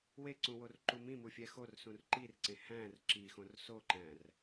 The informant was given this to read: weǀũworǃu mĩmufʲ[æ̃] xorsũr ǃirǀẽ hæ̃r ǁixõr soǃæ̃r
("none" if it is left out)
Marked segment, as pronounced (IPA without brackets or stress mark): æ